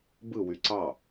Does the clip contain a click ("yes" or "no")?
yes